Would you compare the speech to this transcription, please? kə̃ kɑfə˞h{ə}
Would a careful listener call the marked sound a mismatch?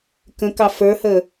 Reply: no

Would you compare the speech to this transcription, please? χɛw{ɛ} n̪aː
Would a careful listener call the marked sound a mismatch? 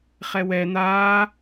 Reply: no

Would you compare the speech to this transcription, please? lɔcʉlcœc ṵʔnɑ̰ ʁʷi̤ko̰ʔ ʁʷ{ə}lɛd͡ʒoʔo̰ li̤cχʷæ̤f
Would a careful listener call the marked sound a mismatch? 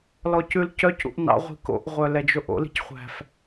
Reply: yes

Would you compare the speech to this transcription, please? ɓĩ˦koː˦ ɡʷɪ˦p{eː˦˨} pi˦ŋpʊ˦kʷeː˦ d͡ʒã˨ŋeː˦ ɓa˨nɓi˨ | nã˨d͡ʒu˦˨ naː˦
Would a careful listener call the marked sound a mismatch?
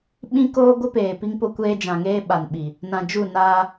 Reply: yes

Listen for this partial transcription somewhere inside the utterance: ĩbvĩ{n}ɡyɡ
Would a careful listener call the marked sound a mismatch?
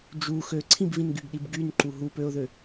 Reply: no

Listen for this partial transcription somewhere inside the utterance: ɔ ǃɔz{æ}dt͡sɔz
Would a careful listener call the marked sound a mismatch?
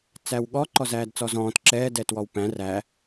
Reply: yes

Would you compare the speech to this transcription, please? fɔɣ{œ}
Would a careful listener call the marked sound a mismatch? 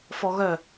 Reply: no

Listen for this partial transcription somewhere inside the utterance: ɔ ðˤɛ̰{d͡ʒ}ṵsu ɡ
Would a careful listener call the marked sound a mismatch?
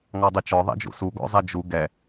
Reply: no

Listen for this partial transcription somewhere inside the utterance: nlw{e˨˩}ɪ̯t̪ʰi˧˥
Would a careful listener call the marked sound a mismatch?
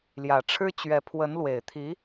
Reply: no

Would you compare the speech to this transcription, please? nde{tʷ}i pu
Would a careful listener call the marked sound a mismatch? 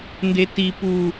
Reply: yes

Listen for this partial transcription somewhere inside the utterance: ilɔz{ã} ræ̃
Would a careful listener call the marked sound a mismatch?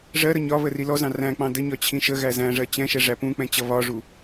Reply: yes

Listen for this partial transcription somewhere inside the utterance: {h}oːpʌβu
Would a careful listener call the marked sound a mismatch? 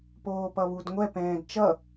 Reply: yes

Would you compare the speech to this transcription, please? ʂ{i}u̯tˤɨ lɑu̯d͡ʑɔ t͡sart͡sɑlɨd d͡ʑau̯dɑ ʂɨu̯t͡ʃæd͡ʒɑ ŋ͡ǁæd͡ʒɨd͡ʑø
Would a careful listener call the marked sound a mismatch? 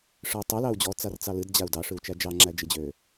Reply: yes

